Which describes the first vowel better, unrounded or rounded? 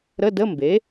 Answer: unrounded